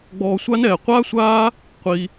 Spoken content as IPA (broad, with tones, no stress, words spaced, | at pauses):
ɡ͡bɔː˧sʷa˦nɛː˨ qʷaː˦sʷaː˦ | qʷi˧